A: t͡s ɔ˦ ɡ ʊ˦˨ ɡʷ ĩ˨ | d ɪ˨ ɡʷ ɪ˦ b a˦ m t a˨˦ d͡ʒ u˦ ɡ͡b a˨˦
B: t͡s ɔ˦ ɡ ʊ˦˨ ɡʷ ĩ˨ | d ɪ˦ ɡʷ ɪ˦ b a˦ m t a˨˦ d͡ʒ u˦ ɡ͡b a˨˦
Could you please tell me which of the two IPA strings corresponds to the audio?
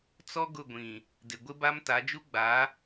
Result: A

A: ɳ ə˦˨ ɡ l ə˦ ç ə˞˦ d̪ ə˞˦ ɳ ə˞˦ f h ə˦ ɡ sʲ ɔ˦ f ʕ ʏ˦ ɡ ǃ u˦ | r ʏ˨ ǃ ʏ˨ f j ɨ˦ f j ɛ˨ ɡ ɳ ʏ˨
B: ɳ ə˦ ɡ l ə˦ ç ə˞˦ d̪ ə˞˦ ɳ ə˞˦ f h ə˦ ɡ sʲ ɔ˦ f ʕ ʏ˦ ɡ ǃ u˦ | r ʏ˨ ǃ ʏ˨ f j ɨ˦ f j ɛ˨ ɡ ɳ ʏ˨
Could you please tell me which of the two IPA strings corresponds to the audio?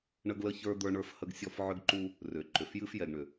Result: B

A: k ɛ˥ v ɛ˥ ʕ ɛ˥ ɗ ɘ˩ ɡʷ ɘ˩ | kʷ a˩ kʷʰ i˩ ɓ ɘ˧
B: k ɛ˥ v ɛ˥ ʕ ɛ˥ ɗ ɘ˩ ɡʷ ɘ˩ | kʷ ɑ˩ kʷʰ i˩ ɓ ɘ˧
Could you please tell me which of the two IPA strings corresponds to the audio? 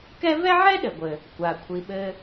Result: A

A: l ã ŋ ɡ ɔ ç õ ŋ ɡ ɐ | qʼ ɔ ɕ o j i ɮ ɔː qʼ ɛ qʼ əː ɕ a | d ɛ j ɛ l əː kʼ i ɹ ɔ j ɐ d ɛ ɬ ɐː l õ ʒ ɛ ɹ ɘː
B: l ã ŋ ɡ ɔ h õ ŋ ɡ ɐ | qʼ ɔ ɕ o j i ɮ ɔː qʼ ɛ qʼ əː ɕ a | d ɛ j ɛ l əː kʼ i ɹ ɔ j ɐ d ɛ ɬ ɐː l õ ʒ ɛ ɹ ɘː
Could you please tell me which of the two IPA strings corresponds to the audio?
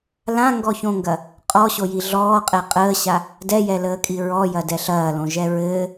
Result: A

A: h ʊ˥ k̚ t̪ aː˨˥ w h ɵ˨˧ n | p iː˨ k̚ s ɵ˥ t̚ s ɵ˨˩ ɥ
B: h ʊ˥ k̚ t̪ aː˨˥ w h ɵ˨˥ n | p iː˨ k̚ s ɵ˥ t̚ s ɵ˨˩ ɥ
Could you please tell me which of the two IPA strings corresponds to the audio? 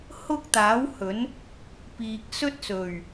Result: B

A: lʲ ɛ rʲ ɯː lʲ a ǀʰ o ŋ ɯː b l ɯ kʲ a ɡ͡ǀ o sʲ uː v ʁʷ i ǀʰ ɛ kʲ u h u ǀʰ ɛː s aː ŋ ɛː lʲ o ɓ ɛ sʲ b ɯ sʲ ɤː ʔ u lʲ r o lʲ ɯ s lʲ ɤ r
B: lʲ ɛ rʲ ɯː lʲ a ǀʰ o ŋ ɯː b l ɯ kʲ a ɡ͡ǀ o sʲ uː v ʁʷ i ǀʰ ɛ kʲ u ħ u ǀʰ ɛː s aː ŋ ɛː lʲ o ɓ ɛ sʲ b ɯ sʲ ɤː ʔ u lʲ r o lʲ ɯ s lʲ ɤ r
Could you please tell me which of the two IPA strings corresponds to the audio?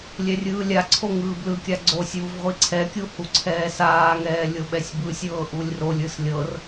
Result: A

